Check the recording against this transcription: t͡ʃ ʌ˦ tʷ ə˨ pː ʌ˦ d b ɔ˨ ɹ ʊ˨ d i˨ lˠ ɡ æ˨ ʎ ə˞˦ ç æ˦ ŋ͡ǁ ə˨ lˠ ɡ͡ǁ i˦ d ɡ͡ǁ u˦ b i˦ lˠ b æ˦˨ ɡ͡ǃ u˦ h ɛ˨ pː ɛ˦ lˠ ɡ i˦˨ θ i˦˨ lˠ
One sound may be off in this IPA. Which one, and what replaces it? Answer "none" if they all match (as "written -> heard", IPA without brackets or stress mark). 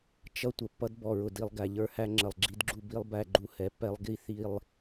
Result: ç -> h